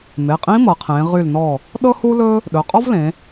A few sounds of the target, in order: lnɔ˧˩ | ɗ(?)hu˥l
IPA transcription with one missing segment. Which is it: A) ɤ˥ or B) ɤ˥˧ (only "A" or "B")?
A